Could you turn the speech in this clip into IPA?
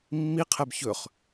mː i qʰ ɛ b ç ɵ χ

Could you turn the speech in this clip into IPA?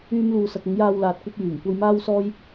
yː˥ m l uː˧ s ɐ˧ k̚ ʊ˨˧ ŋ j aː˧ w l aː˨ t̚ kʷ ɐ˥ p̚ j yː˨˩ ŋ kʷ ɐ˥ j m aː˥ w s ɔː˥ j

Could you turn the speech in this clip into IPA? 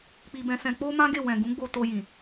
k͡p i˧ b ɛ̃˧ s ɛ̃˧ k͡p o˦ m ã˦ ɡ e˦˨ w ɛ̃˨ ɡ ũ˨˦ ɡ͡b o˧ t o˧ j ĩ˨

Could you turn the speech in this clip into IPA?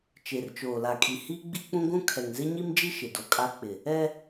t͡ʃ e˨ r t͡ʃ oː˨ l a˨ kʼ i˨ h i˦ ɡ͡b i˦ k͡p ũ˦ ɡʷ ũ˦ kʰ ɛ˨ ŋ z e˦ ɲ i˦ m d͡ʒ i˦ ʃ ɪ˨ d o˨ kʼ a˦ k͡p ɪ˨ | ɛ˦

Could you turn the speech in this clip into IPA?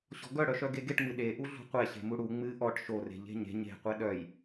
ɕ ɔ̤ ɡ œ ɽ œ ʃ œ ɡ e ɡ e ʈ ŋ͡m ɨ ɗ e ʔ u ɮ ṳ qʷ ɛ ɕ e̤ m u ɽ u ŋ͡m ɨ ʔ ɔ ʈ ʃ o r e̤ ʎ e̤ ɲ e̤ ɲ e̤ qʷ ɛ ɗ œ j

